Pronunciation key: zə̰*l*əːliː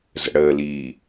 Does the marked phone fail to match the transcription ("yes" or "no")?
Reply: yes